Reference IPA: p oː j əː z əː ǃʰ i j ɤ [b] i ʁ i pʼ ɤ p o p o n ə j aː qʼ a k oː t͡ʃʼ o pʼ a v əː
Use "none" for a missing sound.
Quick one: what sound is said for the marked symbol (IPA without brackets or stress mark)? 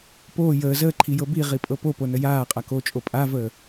b